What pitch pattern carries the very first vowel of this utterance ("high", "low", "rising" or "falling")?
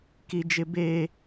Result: high